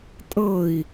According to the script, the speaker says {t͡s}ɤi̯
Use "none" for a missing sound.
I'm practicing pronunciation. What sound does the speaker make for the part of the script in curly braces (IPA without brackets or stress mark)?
tʼ